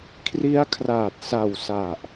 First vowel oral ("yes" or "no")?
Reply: yes